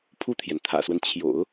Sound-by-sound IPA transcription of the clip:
pʰ u˥˩ t̪ʰ j ɛ˩ n t̪ʰ ä̰˨˩ s w ə˦ n t͡ɕʰ j o̰˨˩˦ ʊ̯

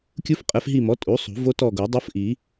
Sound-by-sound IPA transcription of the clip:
kʲ u˦˥ f qʼ ɛ˩˥ f ɦ i˦˨ m ɔ˩˥ tʼ u˩˥ sˤ ṳ˨˩˦ v o˦˥ t ɔ˦˨ ɡ o˨˩˦ dˤ o˦˥ f ʔ i˨˩˦

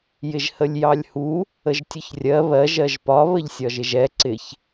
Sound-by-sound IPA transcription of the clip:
j ɪ ʒ h ə lʲ j ɑ lʲ h u | ə ʒ tʲ ʊ ç rʲ ɜ β ɜ ʒ ɜ ʒ p ɒ β ə ʎ sʲ ɒ ʒ ɪ ʒ ɛ ǀ ɪ ç

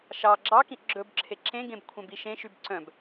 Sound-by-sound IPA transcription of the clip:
ʃ ɑ ɡ͡ǁ ɑ k ĩ ʔ ɡ͡ǁ ɵ b ǁʰ e ǁ ẽ ɡ ẽ b kʷʰ œ̃ b i ʃ ẽ ʃ y b ǀ œ̃ b

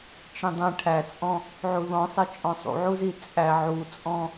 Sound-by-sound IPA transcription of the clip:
t͡ʃ ĩ dˤ ĩ ʈʰ æ t͡sʼ ɔ̃ | ʕ u ð ɔ̃ sˤ e t͡ʃʼ ɔ̃ sˤ ṵ ʕ u z i t͡sʼ æ ʕ u t͡sʼ ɔ̃

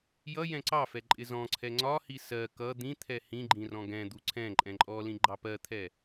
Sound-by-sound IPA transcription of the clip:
j ʌ j ɛ̃ ǀ ɑ f ɛ ǃʼ ɪ z ɔ̃ ǀʰ ɛ ŋ͡ǀ ɒ h i s ɜ k ʌ d̪ ĩ t̪ʰ ɛ h ĩ ɡ͡ǃ ĩ r ɔ̃ ɡ ɛ̃ d̪ u ǀʰ ɛ̃ ǃʼ ɛ̃ ǃʼ ɔ l ĩ ɡ͡ǃ ɑ p ɜ t̪ʰ ɛ

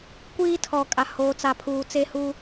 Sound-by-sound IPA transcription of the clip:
kʷ iː˦ tʰ ɔ˨ kʼ a˨ h oː˨ t͡s a˨ pʰ uː˨ t͡s e˦ h u˦

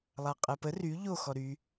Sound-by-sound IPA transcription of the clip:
lˠ a qʼ ɛ p ə r y ʎ o x ɔ ɾ y

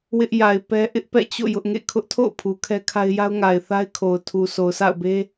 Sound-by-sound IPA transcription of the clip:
w ɪ˦ ʔ j a˨ ɪ̯ p ɛ˦ ʔ ɪ˦ ʔ p ɛ̰˦˨ t͡ɕ o̰˦˨ j ʊ˦ ʔ ŋ ḛ˦˨ kʰ ʊ˦ ʔ tʰ o̰˦˨ ʊ̯ pʰ u˨ kʰ ɛ˦ kʰ a˦ ɪ̯ j a˦ ʊ̯ ŋ a˨ ɪ̯ θ a˦ ɪ̯ kʰ o˨ ʊ̯ tʰ u˨ sʰ o˨ ʊ̯ s a̰˦˨ ʊ̯ b e˦

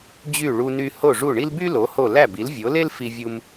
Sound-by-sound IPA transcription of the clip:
d͡ʑ y˥˩ ɭ u˧ n y˧ h o˥˩ ʐ u˥˩ ɳ i˥ l b y˥ l o˩˥ h o˥˩ l æ˥˩ b i˩˥ l vʲ o˩˥ l e˥ l f i˥ vʲ u˥ m

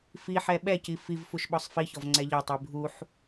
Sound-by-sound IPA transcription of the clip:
f i ħ ɛ ɓ ɛ c i f i v f u ʃ ɓ ɔ sˤ f i ç ɔ v ŋ͡ǀ ɛ ʎ ɛ tˤ i bʱ u ħ

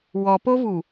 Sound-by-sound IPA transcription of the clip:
w ɔ p o v u

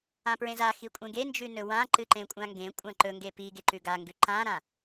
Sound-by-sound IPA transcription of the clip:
ã p ɹ ẽ z a x i kʷʼ ẽ ɡ e n d͡ʒ ʉ n ɵ w ã ǃ ɨ ǃ ẽ kʷʼ ã ŋ ɡ ẽ kʷʼ ã ǃ ɵ ŋ ɡ e p i ɡ e ǃ ʉ ɡ a ŋ ɡ ʉ ǃ ã ɾ ã

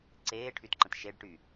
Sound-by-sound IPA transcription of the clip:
ǀ eː ʈʰ y t ǃ ə̃ t ʃ e ɖ ʈ y

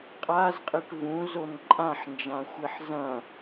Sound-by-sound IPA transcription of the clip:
qʼ a z qʼ i ʈ v ũ z o n ǃʼ ã ħ n d͡ʒ ã xʷ e ħ z ɐ̃

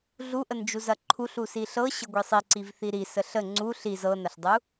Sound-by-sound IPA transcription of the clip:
ɮ u ʔ ə n d͡ʒ u z ɐ ǃʰ u ɬ u s i ɬ ɤ ɕ ə ɡʷ i sˤ i ǀ i v θ i ɾ i s ə ɬ ə ŋ͡ǀ u ɬ i z ɤ n ɐ ɬ dˤ u

